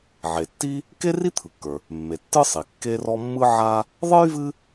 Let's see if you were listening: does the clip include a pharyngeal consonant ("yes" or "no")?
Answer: yes